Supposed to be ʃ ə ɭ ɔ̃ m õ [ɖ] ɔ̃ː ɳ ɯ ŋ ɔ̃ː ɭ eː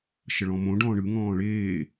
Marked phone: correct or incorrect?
correct